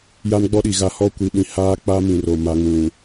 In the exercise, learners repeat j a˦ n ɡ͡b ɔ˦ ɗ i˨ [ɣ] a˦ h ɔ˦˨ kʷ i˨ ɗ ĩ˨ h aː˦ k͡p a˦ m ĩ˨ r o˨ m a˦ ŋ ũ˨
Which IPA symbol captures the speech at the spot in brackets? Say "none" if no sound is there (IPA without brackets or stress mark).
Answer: ɣ